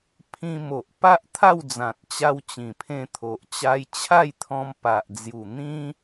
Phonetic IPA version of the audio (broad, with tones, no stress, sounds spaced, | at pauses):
pʰ ĩ˧ m o˨ ʔ p a˦ ʔ t̪ʰ a˥˧ w d͡z ã˨ t̚ t͡ɕ a˧ w t͡ɕ ĩ˨˩ pʰ ẽ˧ t̪ʰ o˨ ʔ t͡ɕ a˧ j t͡ɕʰ a˥˧ j t̪ʰ ɔ̃˧ m p a˨ ʔ d͡z j u˨˩ n̪ ĩ˦